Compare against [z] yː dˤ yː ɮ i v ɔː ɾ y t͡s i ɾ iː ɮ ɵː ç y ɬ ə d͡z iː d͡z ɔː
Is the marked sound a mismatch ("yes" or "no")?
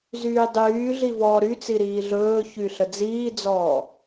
no